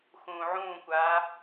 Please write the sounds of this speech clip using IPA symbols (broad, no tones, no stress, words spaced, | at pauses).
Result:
xũːʕũːkʷaː